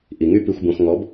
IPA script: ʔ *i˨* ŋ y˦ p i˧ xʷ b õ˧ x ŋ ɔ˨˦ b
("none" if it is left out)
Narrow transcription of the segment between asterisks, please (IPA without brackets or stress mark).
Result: i˨